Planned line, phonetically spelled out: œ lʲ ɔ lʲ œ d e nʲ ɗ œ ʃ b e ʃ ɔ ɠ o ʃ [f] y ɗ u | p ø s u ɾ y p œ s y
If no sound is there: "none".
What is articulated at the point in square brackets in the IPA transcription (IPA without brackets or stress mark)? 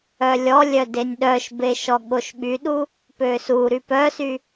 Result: ɓ